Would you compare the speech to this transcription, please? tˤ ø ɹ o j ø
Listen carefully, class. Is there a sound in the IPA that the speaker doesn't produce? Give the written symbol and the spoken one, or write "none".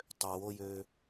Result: ɹ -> w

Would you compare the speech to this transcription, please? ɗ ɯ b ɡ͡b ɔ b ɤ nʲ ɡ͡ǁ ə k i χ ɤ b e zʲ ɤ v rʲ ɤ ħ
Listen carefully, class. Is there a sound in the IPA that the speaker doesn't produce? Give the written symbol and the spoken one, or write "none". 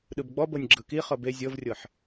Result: ə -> ɯ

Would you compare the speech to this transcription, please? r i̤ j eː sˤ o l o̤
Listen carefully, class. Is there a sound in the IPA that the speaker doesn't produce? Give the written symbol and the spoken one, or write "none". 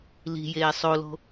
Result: r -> l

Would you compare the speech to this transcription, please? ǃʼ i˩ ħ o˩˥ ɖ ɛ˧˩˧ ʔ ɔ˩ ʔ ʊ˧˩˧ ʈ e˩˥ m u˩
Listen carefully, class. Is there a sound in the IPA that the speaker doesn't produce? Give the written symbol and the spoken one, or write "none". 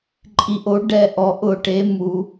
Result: ħ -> ʔ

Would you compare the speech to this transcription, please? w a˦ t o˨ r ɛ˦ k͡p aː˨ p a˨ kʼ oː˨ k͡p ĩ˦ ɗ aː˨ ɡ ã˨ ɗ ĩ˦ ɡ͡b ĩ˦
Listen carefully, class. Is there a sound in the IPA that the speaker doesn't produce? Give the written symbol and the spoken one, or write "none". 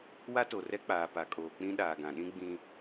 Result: none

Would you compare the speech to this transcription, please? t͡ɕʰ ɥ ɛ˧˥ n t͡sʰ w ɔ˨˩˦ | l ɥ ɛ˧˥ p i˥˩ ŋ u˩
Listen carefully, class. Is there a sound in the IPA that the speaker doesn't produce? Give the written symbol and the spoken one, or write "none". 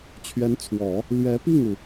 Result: none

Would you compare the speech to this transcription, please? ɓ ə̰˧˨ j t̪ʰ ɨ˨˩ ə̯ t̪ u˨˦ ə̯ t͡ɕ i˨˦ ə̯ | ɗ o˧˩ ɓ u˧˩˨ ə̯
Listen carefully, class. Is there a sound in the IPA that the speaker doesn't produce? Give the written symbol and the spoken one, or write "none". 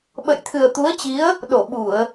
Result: none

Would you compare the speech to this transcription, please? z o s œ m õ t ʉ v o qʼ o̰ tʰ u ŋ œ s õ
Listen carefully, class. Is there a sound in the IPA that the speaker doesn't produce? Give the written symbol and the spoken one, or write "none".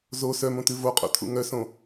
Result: u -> ṵ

